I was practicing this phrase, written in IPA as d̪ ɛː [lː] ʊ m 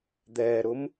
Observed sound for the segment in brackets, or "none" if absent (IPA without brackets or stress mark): ɾ